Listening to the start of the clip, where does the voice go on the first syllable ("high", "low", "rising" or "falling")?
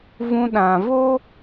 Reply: high